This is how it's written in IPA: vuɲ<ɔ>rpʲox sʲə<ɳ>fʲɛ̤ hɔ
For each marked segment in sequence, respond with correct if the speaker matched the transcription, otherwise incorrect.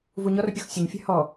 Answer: correct, incorrect: ɲ

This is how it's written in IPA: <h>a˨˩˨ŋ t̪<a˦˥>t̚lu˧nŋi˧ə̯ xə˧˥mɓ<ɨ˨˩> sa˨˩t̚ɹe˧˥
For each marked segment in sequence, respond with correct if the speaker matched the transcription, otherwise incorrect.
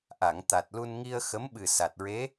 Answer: incorrect: ʔ, incorrect: a˨˩, correct

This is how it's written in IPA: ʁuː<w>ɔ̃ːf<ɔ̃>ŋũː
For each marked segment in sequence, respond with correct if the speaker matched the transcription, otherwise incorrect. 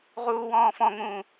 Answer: correct, correct

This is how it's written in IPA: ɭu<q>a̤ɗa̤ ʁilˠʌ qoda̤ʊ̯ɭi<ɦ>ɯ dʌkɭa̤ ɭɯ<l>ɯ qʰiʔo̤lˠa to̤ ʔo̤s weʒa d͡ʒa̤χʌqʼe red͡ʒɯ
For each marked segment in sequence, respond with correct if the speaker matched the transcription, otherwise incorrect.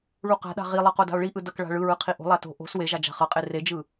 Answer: correct, incorrect: ʔ, incorrect: ɹ

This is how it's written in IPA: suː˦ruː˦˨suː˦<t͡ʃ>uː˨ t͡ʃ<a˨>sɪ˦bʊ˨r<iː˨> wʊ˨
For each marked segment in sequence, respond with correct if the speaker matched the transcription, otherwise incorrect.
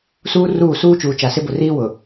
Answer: correct, correct, incorrect: iː˦

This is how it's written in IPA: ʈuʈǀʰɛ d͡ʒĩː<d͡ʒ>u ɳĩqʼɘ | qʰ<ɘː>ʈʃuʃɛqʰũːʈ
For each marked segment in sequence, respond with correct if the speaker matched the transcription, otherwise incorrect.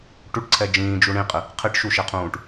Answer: correct, incorrect: ɘ

